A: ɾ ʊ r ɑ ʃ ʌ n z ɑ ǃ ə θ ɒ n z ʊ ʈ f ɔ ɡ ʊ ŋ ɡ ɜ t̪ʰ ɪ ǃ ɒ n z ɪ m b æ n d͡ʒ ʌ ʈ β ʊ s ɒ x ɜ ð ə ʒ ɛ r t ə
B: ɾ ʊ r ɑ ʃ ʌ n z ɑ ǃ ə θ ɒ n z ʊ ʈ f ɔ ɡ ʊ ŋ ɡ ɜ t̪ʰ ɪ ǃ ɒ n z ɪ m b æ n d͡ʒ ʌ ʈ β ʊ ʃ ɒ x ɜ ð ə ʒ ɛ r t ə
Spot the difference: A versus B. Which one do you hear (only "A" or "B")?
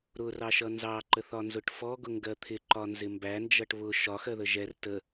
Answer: B